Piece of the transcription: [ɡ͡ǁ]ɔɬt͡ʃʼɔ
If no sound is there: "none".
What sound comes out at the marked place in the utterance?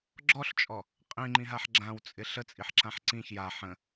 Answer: ɡ͡ǁ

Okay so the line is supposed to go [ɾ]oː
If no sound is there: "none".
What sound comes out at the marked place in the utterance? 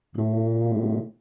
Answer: ɾ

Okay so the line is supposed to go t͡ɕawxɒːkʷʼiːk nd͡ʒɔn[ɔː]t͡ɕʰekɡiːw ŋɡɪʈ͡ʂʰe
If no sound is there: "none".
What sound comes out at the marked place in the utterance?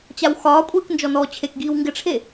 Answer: ɔː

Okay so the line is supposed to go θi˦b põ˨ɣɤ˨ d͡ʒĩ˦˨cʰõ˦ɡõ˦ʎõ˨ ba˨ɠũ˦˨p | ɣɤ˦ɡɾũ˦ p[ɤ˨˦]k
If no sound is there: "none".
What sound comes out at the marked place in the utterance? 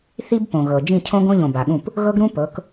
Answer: ɤ˨˦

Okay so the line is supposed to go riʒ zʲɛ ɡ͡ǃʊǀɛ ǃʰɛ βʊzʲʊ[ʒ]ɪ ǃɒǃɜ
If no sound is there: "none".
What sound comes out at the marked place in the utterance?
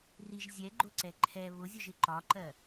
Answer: ʒ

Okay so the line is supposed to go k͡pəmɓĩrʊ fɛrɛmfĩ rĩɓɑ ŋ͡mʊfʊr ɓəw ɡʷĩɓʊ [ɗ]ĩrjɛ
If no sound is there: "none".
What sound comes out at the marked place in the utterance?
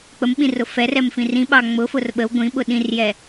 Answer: ɗ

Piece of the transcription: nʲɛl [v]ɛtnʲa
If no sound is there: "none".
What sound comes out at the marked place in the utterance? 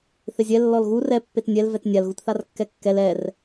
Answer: v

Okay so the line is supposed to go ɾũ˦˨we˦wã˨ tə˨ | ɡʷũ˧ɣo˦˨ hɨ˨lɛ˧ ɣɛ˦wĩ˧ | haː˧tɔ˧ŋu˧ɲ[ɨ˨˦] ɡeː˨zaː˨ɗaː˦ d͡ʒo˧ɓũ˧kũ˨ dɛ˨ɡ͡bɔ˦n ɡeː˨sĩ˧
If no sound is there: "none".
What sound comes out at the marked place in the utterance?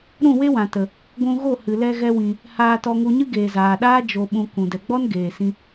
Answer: ɨ˦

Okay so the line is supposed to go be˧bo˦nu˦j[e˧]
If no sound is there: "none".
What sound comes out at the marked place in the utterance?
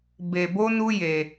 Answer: e˧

